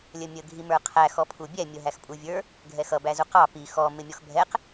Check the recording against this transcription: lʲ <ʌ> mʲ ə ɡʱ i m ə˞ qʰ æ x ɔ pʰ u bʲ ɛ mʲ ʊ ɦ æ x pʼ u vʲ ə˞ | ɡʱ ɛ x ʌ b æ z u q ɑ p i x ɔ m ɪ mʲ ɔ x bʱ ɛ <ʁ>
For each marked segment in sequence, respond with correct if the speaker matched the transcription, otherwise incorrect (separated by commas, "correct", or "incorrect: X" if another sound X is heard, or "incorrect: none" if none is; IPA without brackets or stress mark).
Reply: incorrect: ə, incorrect: q